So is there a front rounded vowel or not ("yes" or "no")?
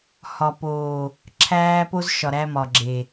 no